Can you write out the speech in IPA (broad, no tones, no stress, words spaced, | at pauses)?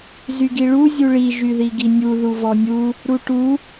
zyɡiɭu zʲuɭi ʒyðiɡinʲu ðuvɔnʲu | ɾuʈu